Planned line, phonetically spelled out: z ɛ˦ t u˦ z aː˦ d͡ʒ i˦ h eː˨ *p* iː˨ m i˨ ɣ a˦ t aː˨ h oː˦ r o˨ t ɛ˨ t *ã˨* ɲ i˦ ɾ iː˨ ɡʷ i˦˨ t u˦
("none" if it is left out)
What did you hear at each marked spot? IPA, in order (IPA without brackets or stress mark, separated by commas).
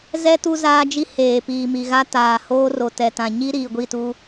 p, ã˨